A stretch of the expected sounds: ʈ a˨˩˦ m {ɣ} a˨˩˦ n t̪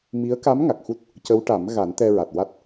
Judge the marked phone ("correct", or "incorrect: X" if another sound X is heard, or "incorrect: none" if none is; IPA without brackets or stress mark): correct